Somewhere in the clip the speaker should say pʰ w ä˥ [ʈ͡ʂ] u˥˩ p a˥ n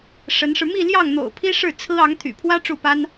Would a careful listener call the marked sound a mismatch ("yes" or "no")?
no